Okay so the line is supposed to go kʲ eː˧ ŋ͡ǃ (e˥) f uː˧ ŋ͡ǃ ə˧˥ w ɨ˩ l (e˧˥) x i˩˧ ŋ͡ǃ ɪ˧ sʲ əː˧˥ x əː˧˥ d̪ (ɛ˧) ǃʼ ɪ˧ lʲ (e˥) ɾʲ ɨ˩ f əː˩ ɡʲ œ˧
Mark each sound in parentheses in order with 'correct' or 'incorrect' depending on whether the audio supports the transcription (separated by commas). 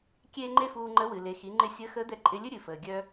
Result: correct, incorrect, correct, incorrect